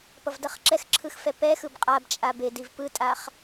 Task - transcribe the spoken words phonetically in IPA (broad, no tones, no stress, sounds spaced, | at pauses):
p ʌ v d ʌ χ ǁ ɛ x ǁʰ ɯ x f ɛ p ɛ x ɯ b qʼ a b t͡ʃʼ a b e d i v p ɯ tʼ a χ